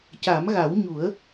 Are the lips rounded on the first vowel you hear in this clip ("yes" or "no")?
no